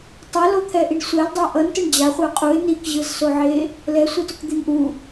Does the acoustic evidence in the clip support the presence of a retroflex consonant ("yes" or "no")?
yes